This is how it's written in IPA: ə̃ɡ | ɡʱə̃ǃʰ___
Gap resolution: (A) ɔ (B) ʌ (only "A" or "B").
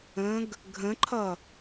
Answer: B